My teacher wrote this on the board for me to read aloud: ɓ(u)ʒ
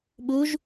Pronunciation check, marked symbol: correct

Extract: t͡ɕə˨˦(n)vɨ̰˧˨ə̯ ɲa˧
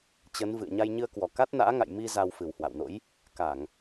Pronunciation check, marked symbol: correct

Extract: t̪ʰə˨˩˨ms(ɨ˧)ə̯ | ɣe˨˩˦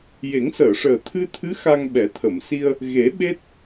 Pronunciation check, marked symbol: incorrect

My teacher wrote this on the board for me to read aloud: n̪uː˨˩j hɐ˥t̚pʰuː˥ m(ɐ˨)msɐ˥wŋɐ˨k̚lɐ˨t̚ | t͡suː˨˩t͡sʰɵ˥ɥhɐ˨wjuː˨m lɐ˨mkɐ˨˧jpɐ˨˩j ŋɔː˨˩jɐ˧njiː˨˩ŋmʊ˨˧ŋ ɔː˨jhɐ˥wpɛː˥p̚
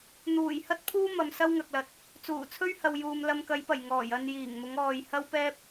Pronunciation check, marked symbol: correct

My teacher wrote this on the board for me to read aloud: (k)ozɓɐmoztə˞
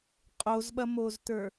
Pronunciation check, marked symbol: incorrect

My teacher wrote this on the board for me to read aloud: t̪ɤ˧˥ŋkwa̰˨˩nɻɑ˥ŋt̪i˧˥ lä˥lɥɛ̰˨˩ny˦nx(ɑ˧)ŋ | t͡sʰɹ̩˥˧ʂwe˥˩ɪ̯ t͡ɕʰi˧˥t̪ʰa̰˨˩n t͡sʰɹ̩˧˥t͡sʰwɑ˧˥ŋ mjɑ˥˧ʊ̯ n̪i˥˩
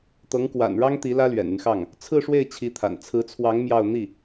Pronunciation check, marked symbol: incorrect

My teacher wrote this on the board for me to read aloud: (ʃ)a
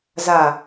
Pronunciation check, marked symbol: incorrect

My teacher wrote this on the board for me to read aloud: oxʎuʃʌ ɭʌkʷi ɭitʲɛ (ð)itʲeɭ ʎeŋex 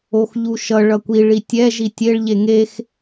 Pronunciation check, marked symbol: incorrect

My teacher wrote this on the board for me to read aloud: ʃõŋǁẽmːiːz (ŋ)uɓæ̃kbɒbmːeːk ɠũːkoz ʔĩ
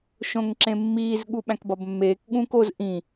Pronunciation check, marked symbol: incorrect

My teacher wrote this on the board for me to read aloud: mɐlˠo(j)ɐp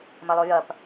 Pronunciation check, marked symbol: correct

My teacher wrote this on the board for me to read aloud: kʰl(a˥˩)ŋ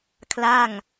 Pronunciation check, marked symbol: correct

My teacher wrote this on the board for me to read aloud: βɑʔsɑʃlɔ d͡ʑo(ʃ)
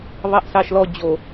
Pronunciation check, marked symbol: incorrect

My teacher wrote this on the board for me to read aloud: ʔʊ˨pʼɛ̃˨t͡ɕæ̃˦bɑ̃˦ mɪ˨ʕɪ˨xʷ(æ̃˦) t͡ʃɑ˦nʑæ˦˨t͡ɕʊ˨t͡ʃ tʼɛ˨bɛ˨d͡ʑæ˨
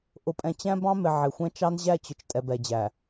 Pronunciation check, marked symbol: incorrect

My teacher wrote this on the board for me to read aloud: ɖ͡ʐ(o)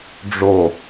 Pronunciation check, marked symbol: correct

